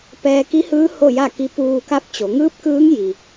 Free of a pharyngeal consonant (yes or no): yes